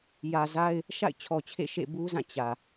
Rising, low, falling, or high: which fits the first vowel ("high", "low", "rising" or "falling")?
low